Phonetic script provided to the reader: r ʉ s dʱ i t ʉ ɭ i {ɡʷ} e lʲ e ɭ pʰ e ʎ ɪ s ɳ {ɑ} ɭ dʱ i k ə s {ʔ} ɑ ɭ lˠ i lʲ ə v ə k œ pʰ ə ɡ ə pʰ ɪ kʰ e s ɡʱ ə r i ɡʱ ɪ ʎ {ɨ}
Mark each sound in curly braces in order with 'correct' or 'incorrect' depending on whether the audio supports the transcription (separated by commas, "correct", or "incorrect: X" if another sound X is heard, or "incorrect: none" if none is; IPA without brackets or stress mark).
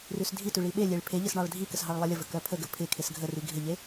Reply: incorrect: ɓ, correct, incorrect: ɦ, incorrect: e